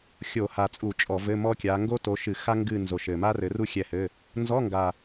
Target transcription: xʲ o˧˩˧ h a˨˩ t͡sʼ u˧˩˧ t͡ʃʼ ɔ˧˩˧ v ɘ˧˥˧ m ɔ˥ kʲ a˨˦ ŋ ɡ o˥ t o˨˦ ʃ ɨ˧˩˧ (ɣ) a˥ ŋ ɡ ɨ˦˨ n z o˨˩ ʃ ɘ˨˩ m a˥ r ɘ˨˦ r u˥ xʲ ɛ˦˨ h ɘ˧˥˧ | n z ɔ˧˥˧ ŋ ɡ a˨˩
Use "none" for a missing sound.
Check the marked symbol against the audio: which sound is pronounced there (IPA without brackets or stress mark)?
x